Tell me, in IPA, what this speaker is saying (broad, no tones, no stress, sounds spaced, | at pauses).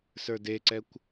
s ə˞ d e ǀ ɛ kʷ